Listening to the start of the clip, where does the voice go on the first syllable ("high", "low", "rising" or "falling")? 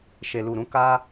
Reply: low